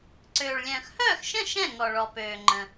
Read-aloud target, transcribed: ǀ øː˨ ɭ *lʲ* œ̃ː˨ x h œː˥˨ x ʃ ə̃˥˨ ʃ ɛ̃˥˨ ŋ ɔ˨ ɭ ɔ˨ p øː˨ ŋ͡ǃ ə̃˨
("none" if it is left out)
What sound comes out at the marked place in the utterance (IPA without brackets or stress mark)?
lʲ